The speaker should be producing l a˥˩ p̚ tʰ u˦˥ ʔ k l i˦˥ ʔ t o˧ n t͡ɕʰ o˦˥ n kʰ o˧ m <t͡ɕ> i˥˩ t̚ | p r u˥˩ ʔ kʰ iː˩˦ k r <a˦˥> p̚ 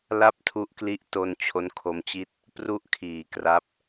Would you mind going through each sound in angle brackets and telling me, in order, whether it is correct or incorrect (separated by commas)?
correct, correct